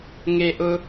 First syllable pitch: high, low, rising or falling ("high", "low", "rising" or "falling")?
high